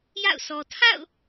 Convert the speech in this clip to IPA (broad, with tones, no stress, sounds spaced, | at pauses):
j a̰˦˨ ʊ̯ s ɔ˨ tʰ a̰˦˨ ʊ̯